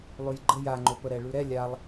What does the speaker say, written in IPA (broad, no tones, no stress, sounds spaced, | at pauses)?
lˠ ʉ j ɡ͡ǃ ə j a ŋ͡ǃ o p ə ɾ ɛ ɭ ʉ ɾ ɛ lʲ a lˠ